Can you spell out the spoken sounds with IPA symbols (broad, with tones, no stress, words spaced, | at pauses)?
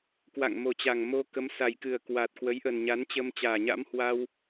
kwa̰˧˨ŋmo˨˩t͡ɕa˨˩ŋ mo˧ kə˨˦msa˨˩jkɨ˨˩ə̯ kwaː˨˩t̚kwə˨˦jʔə˨˩n ɲa˨˦nt͡ɕə˧mt͡ɕaː˨˩ɲa̰˧˥m hwa˧w